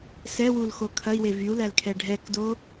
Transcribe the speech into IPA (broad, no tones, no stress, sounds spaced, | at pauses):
s ɛ w u l x o kʰ ɐ i̯ w e v y u̯ l æ l kʰ ɛ ɖʱ ɛ k d o